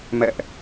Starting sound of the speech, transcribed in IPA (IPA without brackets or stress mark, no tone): m